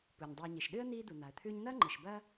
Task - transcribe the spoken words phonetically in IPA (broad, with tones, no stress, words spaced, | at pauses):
pu˩ɲdˤʉː˨ɲi˩ʃɗɨ˥ə̯ n̪iː˦d̪u˩n̪a˩ə̯t̪ʰʉː˦ɲ n̪ɐː˥ŋ͡ǃɨ˩ʃbɐ˥